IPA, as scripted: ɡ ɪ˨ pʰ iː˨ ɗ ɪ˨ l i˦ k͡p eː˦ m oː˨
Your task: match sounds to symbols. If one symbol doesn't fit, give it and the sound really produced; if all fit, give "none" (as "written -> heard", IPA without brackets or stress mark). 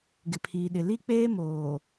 none